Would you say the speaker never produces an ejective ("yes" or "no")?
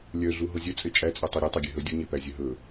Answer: no